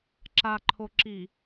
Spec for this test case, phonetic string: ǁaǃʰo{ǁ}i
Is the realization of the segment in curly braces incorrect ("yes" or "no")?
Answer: no